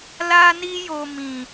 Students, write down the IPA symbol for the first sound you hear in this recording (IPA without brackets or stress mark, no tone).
l